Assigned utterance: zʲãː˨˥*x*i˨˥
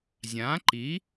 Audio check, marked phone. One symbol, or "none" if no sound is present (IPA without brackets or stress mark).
ǃ